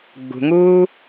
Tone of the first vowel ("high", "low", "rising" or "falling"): low